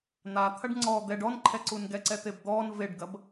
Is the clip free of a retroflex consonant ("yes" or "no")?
no